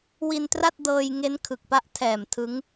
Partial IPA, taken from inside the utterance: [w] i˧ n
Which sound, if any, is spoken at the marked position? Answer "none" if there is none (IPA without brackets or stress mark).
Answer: w